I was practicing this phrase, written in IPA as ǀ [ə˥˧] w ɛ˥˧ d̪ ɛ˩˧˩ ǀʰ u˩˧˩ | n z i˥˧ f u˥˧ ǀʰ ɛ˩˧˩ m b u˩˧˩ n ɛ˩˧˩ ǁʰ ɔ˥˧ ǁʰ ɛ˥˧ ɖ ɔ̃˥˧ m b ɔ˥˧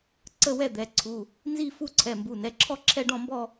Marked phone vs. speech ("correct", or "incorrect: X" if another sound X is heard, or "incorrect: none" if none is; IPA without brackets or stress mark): correct